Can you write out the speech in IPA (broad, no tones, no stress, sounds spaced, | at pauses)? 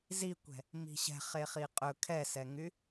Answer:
z i kʷ ɛ̤ | m i̤ ɕ ɛ̤ χ e χ i qʼ ɵ kʰ ɛ s ɛ ŋ y